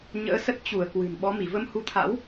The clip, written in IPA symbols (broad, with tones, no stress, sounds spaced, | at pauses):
ɲ ə̰ː˧˥ s ə˦˥ t̚ t͡ɕ u˧˩ ə̯ k w ɨ̤˨˩ n ɓ ɔ˨˦ m i˧˩ v ə˧ m h u˨˦ t̪ʰ a̰˧˥ w